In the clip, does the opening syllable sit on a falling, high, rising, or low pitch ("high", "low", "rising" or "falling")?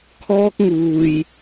high